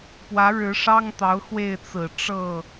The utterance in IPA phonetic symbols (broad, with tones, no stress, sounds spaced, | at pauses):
p w ä˧˥ ɻ ɻ̩˧˥ ʂ ɑ˥ ŋ t̪ ɑ˧˥ ʊ̯ x w e˥˩ ɪ̯ t͡s ɹ̩˨˩ ʈ͡ʂ ɤ˥˩